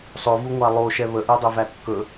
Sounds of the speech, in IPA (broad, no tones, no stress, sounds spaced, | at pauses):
sˤ ɵ v u ŋʷ a lˠ o ʃ ɛ β ə ʔ ɛ dˤ ɛ v æ kː ɵ